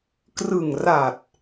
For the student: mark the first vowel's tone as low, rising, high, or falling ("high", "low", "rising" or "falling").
low